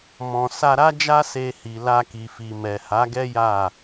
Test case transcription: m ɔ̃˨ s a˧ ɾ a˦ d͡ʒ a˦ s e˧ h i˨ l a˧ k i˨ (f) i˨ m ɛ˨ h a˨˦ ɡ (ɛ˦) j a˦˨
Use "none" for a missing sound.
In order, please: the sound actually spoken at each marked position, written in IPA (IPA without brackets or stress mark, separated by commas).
f, ɛ˦